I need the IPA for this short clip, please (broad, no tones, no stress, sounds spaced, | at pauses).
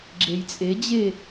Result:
ɡ͡ǁ e j t͡sʼ e d͡ʑ e